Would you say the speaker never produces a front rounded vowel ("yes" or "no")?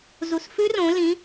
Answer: yes